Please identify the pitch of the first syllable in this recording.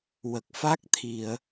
low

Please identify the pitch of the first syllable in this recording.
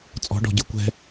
rising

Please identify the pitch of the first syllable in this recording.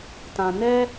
low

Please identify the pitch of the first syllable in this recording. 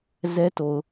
high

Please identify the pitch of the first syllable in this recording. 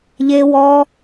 low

